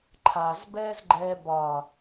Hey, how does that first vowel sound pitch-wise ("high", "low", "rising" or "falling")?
low